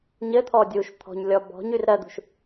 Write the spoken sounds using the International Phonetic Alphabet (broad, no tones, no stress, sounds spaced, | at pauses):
ɲ ɘ t̪ʰ ɔ dʲ u ʃ t̪ʰ ɔ̤ ɲ lʲ ɔ b ɔ̤ ɲ y r ɾ ɜ d̪ ṳ ʃ